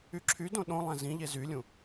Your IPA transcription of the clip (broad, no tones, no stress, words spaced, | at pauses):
yǁʰydõ ɗõlˠæ̃ zĩʎe zylʲũ